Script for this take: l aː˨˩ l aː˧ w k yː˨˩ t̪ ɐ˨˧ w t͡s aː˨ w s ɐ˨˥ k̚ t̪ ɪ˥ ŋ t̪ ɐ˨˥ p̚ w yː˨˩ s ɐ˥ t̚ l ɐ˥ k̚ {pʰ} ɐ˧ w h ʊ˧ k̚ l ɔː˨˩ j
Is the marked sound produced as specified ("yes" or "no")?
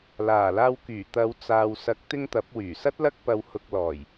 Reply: no